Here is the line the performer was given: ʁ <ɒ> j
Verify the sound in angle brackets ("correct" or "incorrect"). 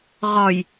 correct